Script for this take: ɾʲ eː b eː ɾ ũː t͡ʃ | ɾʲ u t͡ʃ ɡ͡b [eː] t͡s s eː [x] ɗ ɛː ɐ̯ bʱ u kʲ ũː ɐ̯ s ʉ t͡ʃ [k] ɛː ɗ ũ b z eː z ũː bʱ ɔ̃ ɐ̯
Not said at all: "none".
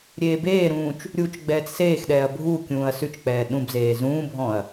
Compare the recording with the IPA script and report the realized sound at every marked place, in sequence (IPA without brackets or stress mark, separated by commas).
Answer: ɛː, x, k͡p